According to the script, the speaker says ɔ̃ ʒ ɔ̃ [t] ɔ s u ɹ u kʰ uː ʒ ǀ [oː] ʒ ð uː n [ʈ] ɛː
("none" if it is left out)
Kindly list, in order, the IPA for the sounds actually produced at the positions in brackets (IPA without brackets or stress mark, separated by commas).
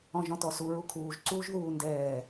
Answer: t, uː, d